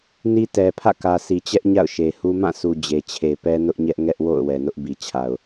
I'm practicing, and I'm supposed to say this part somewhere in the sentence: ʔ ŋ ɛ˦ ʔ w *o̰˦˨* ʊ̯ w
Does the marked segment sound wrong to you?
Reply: no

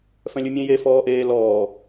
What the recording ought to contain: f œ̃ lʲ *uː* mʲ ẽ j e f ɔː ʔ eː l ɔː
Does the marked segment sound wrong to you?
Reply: yes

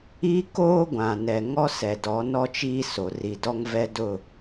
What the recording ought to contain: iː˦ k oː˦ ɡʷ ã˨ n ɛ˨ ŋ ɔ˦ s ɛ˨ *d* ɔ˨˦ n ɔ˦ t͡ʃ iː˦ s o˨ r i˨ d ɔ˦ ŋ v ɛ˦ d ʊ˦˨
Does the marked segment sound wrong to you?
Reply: no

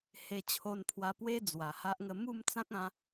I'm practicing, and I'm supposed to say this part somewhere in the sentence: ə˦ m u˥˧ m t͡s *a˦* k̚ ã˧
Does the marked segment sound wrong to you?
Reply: yes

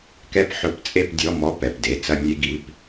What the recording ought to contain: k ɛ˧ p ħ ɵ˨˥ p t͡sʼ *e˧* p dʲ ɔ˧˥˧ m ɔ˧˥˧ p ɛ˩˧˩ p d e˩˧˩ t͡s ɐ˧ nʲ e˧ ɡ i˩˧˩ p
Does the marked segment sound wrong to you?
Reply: no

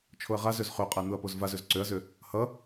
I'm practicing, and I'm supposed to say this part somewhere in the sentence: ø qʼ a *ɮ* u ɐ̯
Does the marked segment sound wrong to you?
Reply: yes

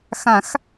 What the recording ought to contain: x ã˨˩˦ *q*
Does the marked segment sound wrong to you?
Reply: yes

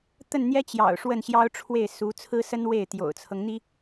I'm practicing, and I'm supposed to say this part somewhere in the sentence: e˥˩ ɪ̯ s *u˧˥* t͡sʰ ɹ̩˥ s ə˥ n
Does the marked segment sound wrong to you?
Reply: no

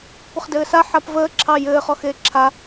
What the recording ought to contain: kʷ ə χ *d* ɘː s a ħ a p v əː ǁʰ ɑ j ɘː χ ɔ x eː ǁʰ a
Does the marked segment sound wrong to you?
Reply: no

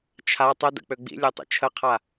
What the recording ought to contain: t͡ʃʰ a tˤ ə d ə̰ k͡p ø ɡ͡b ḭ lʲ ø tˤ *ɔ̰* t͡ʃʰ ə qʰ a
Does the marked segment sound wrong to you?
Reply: yes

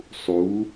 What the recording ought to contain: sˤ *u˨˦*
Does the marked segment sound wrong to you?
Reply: no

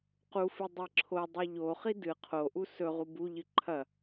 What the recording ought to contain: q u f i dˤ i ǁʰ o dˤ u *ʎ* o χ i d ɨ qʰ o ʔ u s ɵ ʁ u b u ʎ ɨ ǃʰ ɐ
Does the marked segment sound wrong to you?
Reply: no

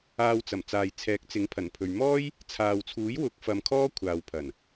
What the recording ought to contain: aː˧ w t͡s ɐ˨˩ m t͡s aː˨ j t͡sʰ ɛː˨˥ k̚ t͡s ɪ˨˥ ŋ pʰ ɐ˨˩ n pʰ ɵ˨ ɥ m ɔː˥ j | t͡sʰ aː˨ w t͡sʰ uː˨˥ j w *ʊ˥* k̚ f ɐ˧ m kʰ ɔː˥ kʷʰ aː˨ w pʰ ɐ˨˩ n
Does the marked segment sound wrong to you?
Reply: yes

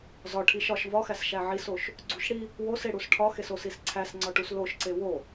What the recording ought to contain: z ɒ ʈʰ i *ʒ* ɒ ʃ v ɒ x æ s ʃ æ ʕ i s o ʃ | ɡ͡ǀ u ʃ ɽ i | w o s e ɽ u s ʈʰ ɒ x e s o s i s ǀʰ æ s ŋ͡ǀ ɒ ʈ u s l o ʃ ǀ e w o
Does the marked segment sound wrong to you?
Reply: yes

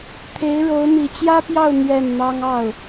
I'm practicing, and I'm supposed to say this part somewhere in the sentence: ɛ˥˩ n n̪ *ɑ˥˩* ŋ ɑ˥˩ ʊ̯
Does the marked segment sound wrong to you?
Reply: yes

